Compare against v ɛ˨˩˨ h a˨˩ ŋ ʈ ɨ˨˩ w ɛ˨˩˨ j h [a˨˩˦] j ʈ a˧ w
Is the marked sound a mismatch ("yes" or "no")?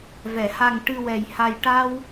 yes